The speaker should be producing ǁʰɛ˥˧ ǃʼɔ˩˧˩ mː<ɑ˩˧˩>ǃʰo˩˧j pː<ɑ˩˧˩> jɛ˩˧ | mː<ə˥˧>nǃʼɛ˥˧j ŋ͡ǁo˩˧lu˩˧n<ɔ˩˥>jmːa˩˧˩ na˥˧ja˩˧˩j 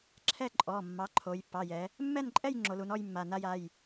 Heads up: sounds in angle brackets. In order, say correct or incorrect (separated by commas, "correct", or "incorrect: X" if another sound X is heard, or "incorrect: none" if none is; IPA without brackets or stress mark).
incorrect: ɑ˩˥, correct, incorrect: ɛ˥˧, incorrect: ɔ˥˧